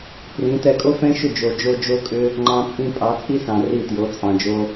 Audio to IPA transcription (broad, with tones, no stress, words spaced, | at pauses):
prĩ˨˦ tɛ˧kʼo˦fɛ̃˦ʃʏ˦˨ d͡ʒo˨d͡ʒo˧ d͡ʒo˦kʼʏ˦ | ŋ͡ǃɑ̃˦t͡sʼĩ˦ pʼɑ˨˦t͡sʼi˦sɑ̃˨ ri˦˨tjo˨˦ t͡sʼɑ̃˨d͡ʒo˧